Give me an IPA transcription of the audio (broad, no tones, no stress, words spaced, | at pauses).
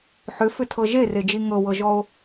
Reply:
ħʏfʏtʰɤ ʒered͡ʒi ŋɤwɤʒɔo̯